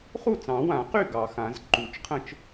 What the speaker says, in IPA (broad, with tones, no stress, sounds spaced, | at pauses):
χ u˥˩ t͡s ɑ̃˨˩˦ w ã˨˩˦ q y˥˩ ɡ ɑ˨˩˦ x ã˨˩˦ z ǃ u˨˩˦ t͡ʃ qʰ ə̃˥˩ t͡ʃ